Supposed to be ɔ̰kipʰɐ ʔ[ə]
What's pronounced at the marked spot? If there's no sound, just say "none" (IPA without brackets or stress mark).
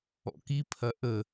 ə